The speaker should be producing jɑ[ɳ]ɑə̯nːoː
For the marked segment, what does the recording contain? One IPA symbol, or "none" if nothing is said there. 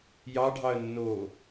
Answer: ɖʱ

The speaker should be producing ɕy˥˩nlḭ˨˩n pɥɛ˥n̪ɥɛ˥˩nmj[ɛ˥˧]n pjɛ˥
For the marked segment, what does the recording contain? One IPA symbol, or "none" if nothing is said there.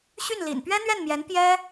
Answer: ɛ˧˥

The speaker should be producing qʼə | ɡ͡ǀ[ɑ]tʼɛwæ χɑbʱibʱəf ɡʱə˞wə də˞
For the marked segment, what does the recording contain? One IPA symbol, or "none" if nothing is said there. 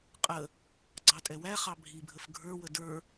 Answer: ɑ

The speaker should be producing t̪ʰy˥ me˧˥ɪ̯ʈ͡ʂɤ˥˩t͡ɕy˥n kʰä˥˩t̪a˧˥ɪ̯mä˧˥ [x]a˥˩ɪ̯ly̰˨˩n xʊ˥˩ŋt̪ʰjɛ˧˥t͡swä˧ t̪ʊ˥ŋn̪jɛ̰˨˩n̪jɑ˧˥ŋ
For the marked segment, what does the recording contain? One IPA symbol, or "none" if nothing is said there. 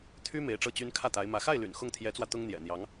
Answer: x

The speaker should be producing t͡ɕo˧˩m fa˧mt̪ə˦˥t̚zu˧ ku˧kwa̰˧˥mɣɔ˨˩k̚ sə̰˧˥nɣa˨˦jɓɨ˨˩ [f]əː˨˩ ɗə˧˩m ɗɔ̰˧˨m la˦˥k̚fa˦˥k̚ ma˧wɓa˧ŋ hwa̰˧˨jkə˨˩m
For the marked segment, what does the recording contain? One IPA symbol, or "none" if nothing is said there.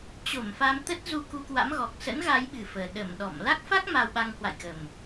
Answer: f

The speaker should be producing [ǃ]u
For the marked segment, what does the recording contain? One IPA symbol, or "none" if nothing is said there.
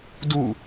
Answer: d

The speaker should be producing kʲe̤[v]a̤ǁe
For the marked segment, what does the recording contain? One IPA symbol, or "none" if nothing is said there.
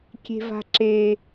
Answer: v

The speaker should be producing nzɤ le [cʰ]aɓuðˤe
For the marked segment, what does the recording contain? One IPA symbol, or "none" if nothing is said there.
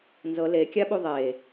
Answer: kʲ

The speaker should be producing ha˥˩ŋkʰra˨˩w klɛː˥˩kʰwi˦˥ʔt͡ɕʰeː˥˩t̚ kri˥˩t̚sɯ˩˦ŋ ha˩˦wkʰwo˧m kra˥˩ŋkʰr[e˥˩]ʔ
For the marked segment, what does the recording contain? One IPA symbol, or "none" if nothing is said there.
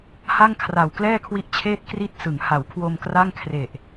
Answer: e˨˩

